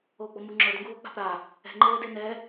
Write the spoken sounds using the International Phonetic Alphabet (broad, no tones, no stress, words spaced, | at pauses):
oːɡ͡bɔmu ŋ͡ǁɤd ŋɡuːo̯k͡pa̤pɾa | ɛ̤ ŋ͡ǃeːdenɛ